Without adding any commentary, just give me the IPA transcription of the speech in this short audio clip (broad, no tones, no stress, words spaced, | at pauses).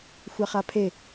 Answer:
xʷaχapʰe